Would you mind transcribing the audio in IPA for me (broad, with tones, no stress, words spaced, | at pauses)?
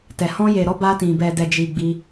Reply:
tɛ˨ hɔ̃˧je˨ɾɔ˧ ba˧tĩ˨ bɛ˨dɛ˨d͡ʒi˨ ɡ͡bi˧